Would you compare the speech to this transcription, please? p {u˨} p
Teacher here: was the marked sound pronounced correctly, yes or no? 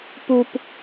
yes